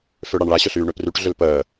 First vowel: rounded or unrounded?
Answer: rounded